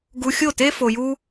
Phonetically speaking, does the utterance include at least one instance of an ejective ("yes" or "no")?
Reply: no